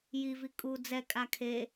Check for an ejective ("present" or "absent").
present